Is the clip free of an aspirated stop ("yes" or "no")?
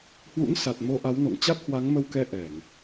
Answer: yes